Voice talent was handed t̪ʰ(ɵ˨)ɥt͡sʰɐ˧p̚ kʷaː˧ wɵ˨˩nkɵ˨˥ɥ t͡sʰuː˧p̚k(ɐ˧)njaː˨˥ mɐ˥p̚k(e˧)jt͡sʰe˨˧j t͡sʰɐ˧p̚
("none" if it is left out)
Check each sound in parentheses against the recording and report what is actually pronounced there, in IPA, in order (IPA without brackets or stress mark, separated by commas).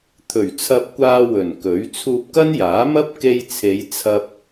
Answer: ɵ˨˩, ɐ˥, e˧